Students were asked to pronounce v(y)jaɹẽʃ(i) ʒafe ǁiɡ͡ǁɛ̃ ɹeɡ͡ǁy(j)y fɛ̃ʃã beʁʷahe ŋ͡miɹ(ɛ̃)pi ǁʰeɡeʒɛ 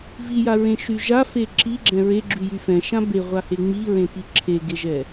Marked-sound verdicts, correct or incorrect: incorrect: i, incorrect: y, correct, incorrect: ẽ

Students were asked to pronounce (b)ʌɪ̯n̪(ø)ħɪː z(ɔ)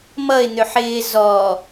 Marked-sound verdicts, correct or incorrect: incorrect: m, correct, correct

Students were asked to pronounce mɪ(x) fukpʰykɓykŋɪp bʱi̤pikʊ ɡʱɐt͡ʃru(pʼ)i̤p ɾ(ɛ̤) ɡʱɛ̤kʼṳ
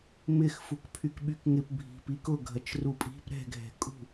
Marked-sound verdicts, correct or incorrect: correct, correct, correct

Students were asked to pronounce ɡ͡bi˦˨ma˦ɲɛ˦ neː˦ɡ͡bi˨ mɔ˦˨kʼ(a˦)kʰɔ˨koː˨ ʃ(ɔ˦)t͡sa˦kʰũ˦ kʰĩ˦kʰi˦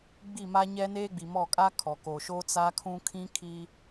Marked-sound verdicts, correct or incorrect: correct, incorrect: o˦

